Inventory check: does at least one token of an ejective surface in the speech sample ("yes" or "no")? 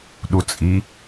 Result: yes